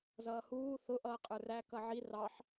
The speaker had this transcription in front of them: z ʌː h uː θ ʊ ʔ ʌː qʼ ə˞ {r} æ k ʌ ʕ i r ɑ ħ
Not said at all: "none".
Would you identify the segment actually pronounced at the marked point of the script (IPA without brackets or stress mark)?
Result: r